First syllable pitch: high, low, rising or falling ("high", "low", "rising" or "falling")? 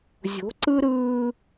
rising